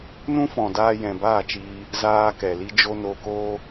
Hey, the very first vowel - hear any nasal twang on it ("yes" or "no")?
yes